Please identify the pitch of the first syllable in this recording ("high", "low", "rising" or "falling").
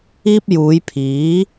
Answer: high